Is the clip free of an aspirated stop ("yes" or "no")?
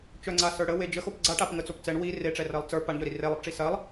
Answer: yes